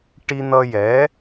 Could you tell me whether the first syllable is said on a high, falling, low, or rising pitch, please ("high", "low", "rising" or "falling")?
high